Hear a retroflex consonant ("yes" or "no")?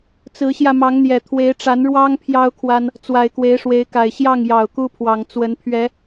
yes